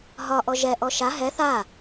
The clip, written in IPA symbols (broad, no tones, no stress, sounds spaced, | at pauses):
ɦ ɒ ʔ ɔ ʒ ɛ ʔ ɔ ʃ a ɦ ɛ θ a